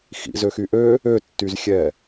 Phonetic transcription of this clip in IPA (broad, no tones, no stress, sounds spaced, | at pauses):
x ḭ z ø x y ʔ ø | ø tː y z xʲ ɛ